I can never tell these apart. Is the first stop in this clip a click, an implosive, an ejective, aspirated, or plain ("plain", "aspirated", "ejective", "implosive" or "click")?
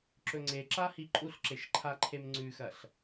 click